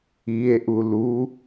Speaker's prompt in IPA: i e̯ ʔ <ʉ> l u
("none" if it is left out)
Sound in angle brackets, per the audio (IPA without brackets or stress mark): u